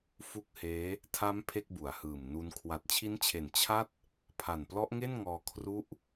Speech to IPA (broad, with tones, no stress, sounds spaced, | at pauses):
f u˦˥ k̚ h eː˦˥ | tʰ a˦˥ m pʰ e˥˩ k̚ b u˩˦ a̯ h ɯː˨˩ m n u˦˥ n kʰ w a˨˩ t̚ t͡ɕʰ i˦˥ n t͡ɕʰ e˨˩ n t͡ɕʰ a˥˩ t̚ | pʰ a˨˩ n p l ɔ˦˥ ʔ ŋ e˥˩ n ŋ ɔː˧ kʰ r u˦˥ ʔ